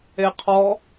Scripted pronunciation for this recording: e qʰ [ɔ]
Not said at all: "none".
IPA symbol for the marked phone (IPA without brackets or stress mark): ɔ